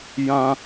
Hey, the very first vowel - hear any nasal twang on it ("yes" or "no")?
yes